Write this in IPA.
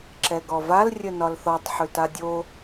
ǁɛɡɔval rʲənɒlθɔtˤ ħʉtadʲo

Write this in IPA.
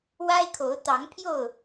wa˦ɪ̯kʰo˨˦ʊ̯ t̪ɑ˨˦ŋpʰjo˥˨ʊ̯

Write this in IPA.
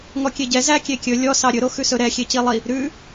ŋɔkʲeɟɛ zæ kʲekʲɵ lʲɔ sɑɾʲɵɾo xʉsɵɾɛ xʲecilˠi | ɾʉ

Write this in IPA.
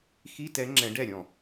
xi˧˥˧tɛ˨˥ ŋ͡ǁɛ̃˨˥ɖɛ˥˩ɾʲɔ̃˥˩

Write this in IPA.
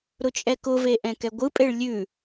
ɾʊt͡ʃʼɛkʊve ʔɛ̃kɛɡʷɯpʼeɭ lʲʉ

